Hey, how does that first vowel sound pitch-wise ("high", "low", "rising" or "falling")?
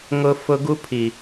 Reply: low